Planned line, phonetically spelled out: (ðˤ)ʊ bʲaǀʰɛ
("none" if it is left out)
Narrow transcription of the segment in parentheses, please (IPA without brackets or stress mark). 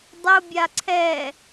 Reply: dˤ